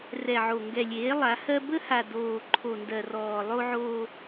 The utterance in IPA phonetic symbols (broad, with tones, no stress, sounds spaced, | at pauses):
r ɛ˨ ʕ o˨ ŋ ɡ ɛ˨ lʲ eː˨˦ lˠ a˨˦ h ɜ˦ b ə˦ h a˨ d oː˨ ǃʰ o˨ n d ɜ˨ r ɔː˨ lˠ o˦ ʕ oː˦